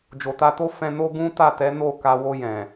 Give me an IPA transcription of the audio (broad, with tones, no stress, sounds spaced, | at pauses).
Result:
d͡ʒ o˨ t a˧ t o˦ f ɛ̃˧ n o˦ ɡ ũ˦ t a˦˨ t ɛ˨˦ n o˦˨ k a˧ w o˧ j ɛ̃˨